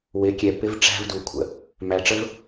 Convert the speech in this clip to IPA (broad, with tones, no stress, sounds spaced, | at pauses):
w ɪ˨˦ kʲ ɛ˨ p ɪ˦ v ʈ͡ʂ æ̤˦ v d u˨ kʷʰ ə̰˨ | m æ˨ ʈ͡ʂ ə˦ v